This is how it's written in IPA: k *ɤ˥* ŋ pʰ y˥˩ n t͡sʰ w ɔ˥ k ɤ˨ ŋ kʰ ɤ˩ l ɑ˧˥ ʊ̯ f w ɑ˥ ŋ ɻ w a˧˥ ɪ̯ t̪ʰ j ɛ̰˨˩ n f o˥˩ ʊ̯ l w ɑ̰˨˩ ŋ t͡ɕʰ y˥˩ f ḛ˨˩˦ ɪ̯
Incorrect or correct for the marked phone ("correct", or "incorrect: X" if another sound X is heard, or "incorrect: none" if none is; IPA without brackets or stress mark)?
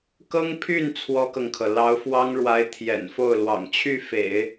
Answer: correct